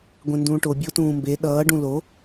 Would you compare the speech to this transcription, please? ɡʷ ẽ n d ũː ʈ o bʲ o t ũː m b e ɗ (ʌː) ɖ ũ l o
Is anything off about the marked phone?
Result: no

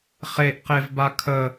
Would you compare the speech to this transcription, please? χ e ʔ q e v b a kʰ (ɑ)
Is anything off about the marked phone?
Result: yes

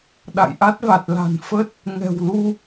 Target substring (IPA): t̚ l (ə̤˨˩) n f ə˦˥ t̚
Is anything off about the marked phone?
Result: yes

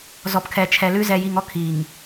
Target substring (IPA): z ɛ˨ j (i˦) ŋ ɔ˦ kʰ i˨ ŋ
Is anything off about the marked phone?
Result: yes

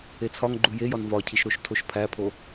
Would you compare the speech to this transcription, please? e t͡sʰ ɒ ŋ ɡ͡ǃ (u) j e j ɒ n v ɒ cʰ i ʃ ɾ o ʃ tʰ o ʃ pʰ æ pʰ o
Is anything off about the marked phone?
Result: no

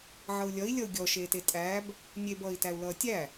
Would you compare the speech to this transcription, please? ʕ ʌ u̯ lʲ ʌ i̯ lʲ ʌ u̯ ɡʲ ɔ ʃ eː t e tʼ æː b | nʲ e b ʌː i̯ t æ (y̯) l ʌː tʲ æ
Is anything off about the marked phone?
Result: yes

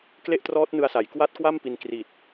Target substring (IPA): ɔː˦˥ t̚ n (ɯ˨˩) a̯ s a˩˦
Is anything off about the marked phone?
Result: yes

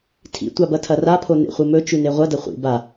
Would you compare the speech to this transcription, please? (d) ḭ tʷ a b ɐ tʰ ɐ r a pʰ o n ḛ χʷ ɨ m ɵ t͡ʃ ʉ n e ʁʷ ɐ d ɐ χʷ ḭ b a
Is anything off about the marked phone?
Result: yes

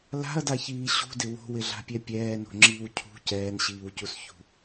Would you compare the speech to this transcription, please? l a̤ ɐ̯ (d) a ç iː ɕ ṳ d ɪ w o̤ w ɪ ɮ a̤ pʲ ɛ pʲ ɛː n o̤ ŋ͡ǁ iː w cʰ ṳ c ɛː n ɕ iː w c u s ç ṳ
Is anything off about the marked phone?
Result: no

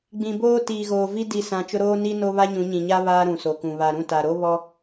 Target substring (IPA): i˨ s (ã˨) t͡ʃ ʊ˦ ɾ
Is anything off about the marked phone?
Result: no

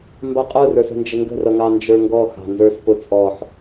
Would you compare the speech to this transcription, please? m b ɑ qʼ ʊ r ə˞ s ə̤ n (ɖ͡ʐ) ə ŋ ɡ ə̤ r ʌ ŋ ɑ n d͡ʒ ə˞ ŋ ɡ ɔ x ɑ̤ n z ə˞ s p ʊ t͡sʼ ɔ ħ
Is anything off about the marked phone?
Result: yes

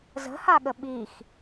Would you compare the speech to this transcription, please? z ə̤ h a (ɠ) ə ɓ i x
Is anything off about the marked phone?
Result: no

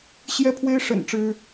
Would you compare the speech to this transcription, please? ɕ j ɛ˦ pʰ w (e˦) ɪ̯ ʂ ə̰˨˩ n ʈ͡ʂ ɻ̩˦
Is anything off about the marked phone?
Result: no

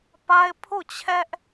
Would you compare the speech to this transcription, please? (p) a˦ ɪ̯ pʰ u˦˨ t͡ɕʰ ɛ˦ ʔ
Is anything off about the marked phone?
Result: no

